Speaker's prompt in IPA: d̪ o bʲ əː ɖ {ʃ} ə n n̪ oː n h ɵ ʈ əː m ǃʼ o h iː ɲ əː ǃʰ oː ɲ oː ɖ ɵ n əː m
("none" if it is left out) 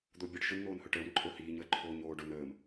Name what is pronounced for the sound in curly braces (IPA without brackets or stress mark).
ʃ